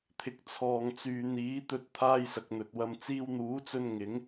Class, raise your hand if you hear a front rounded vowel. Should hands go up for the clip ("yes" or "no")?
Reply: yes